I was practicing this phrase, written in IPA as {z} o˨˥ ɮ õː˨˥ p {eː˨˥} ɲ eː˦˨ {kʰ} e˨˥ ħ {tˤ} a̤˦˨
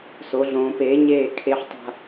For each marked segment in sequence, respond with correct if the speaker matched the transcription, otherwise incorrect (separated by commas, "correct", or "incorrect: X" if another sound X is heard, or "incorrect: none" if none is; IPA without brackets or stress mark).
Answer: incorrect: s, correct, correct, correct